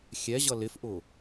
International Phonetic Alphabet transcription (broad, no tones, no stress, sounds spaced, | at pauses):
xʲ ɛ ʑ ʌ l ɪ f ʔ ʊ